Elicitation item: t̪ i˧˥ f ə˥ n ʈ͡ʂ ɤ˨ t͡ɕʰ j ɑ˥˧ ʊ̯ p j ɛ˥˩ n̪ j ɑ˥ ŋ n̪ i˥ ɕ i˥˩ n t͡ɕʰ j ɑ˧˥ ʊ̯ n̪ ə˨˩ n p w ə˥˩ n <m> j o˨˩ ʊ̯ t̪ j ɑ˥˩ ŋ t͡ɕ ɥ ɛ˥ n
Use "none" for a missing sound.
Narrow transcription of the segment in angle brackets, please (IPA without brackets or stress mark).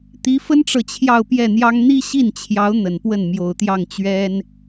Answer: m